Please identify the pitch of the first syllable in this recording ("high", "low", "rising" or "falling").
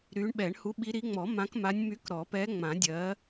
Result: rising